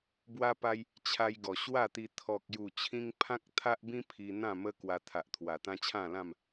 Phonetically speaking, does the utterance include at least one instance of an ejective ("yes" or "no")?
no